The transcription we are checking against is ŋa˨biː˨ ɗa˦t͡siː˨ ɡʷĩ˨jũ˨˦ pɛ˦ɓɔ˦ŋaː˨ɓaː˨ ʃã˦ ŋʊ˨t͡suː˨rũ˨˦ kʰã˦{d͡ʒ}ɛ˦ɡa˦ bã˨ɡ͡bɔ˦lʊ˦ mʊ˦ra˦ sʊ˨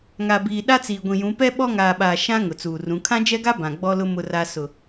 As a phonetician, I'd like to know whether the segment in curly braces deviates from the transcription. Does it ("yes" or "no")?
no